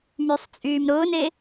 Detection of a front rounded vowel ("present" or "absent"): present